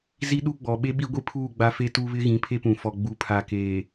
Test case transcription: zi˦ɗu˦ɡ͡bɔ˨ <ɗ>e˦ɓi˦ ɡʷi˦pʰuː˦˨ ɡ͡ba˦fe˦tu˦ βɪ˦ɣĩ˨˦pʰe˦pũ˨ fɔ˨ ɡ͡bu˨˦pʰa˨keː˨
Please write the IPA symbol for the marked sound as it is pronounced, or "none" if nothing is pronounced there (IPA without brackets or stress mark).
ɓ